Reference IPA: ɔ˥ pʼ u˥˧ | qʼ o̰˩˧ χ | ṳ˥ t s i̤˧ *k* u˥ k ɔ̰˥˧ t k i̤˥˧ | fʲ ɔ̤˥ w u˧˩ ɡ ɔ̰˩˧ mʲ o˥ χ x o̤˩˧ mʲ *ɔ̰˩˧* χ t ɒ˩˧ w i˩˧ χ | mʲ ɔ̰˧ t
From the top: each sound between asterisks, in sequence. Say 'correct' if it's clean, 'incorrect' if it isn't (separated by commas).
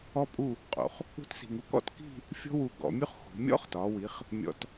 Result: incorrect, incorrect